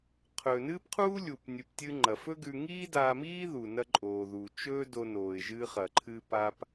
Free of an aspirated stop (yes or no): no